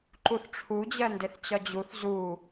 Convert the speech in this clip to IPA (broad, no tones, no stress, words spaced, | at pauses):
ǃuθʈ͡ʂʰu d͡ʑɜndeθt͡ɕɒd͡ʑuθ zu